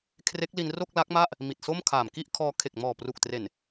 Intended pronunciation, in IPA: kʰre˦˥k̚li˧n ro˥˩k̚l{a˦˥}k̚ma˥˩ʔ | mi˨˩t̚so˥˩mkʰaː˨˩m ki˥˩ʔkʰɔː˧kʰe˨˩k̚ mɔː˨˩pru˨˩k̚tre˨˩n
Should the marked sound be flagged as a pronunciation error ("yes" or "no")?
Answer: no